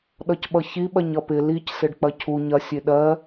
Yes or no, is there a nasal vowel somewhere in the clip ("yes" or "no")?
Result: no